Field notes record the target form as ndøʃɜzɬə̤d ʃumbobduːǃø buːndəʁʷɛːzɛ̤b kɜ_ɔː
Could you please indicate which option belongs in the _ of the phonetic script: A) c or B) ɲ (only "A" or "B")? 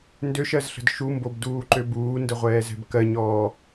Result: B